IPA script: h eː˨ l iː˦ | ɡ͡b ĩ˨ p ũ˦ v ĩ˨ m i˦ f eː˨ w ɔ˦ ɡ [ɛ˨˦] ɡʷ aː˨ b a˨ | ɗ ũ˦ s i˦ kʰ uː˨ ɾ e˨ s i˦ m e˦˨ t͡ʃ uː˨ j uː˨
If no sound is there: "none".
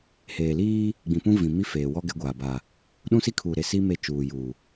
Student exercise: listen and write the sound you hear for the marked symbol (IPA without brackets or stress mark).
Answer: ɛ˨˦